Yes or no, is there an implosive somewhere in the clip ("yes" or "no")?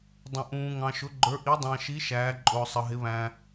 no